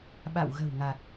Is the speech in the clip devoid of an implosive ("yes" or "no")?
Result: no